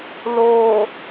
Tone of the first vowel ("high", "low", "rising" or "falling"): low